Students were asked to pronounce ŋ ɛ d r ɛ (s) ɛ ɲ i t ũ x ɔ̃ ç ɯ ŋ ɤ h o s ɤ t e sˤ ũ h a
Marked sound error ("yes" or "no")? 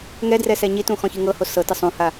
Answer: no